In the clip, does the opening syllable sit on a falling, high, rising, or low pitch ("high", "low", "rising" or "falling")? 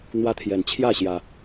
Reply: high